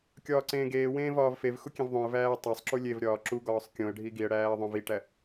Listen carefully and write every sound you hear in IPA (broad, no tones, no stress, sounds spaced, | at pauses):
kʲ ɒː ǀ ẽː ɡ eː w ẽː v ɒː v f e v x u kʲ ẽ v ðˤ õ ə̯ v æː ə̯ tˤ æ sˤ ǁ u lʲ e v ɾʲ ɒː ǁ u ɡ ɒː sˤ kʲ õ ə̯ ɖʱ i ɡ i ə̯ ɽ æː ə̯ ðˤ õ v i ʈ æ